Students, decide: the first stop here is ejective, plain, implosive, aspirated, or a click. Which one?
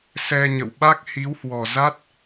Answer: implosive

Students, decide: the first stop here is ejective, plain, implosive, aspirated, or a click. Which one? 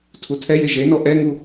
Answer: aspirated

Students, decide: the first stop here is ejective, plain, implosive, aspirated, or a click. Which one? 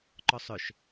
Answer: click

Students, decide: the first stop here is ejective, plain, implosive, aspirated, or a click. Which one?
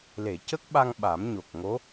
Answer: plain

